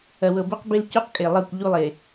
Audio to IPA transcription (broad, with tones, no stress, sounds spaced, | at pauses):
ɐ˨ w ɤ˨ b ɛ˦ q b e˦ l c u˦ q kʼ e˨ lˠ ɤ˦˨ kʷ ʎ u˦ lˠ e˨